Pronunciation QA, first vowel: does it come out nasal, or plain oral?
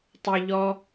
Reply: oral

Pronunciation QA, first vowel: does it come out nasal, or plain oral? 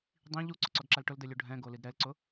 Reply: nasal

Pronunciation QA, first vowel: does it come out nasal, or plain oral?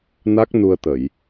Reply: oral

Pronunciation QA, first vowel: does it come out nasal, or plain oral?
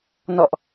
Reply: oral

